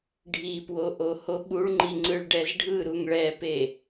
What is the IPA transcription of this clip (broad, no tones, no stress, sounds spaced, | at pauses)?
ɖʱ i p w o ʔ o h o ɓ u ɭ ŋ͡ǃ i ŋ͡ǀ ɯ ɭ ɖ ɛ z ɖʱ ɯ ɾ u ŋ ɭ ɛ p e